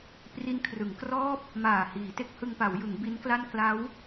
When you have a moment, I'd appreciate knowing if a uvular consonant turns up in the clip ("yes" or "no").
no